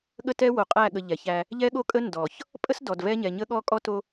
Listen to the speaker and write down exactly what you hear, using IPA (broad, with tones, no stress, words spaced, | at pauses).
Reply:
ɠə˦tɛ˦ wo˨qʼæ˦˨ɠə˨ ʎɛ˨çæ˦ | ʎɛ˦ɠo˦ kʼə˦ ndɔ˨ç | pʼə˦s dɔ˨dvɛ˦ ɲɛ˨ɲə˦ɠɔ˦ kʼɔ˦to˦